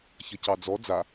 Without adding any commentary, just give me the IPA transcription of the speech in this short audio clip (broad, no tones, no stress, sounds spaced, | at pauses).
ç ʌ c ɑ d͡z ɔ d͡z a